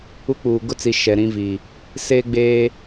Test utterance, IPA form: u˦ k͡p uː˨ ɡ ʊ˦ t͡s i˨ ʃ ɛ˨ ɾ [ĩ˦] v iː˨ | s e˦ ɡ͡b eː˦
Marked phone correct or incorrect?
correct